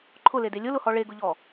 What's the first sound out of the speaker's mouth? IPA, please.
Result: ǃʰ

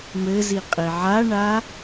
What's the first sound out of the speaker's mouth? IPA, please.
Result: m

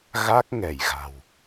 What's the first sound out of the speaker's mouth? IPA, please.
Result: ɣ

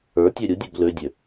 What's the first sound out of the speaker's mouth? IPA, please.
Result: ə˞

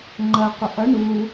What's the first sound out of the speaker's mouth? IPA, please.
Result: ŋ͡ǃ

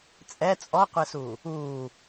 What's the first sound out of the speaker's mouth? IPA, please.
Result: t͡sʼ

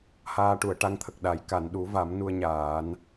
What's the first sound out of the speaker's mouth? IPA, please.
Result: h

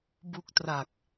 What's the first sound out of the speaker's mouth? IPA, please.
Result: b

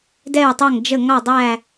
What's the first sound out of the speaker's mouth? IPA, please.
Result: d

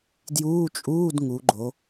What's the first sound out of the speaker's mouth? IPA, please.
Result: d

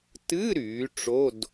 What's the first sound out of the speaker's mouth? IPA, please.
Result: t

